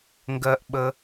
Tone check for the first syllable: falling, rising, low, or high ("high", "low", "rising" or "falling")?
high